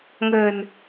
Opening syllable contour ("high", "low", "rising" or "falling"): low